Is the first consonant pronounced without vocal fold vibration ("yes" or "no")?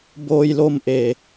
no